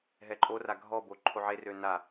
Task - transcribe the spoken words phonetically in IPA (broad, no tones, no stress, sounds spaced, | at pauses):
ɦ ɛ ǃʼ o r a ɡʱ ɔ b o ǃʰ o ʕ e r ø n a